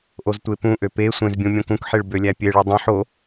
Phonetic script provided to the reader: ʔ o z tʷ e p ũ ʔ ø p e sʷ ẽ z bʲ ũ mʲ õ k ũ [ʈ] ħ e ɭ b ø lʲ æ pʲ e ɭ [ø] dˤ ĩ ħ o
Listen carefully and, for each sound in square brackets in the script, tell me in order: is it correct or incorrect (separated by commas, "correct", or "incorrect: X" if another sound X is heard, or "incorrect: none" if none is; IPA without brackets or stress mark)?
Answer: incorrect: k, incorrect: y